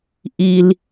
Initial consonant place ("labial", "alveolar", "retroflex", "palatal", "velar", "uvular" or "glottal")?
glottal